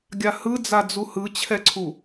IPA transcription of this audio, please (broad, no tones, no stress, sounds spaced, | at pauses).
ɡʲ a h ɯ d͡z a d͡z u h ɯ t͡ɕʰ ɛ ǀʰ u